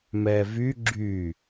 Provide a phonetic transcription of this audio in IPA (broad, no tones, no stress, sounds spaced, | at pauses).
m ɛ v y ɡ͡ǁ y